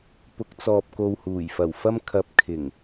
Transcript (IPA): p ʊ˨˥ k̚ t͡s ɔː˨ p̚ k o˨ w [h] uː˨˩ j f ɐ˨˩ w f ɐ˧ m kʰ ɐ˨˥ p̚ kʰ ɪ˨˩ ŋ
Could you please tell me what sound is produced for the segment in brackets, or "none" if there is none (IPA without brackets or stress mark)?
h